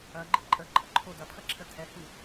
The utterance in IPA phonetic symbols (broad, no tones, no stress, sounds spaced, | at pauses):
ɐ ɡ͡ǃ i ǃʼ ə ǃʼ ə ǃʰ o d ɐ pʰ ɐ ǁʰ ə tʰ ɛ h ɨ